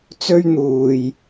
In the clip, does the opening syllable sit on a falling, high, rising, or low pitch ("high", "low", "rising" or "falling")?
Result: high